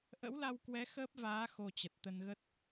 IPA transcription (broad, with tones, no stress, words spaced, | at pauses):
ʔə̰˧˥wla˧wkwɛ˨˦ xəː˦˥p̚vaː˨˦ xo˧t͡ɕə˨˩t̚t̪ə˧nɣə˦˥t̚